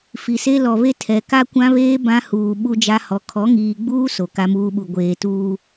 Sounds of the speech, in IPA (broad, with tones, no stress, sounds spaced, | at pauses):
f i˨ s e˦ l ɔ˨ β e˦ tʰ ɛ˨ k a˦ kʷ ã˦ β eː˦ b ã˦ h uː˨ ɓ u˦ d͡ʒ a˦ h ɔ˨ kʰ ɔ˨˦ ŋ iː˨ ɡ͡b uː˦ s o˨ k a˦ m uː˦ ɓ u˨ ɡʷ eː˨ t uː˨